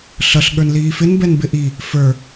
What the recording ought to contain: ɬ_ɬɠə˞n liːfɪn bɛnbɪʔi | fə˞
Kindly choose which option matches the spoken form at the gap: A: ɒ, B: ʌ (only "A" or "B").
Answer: B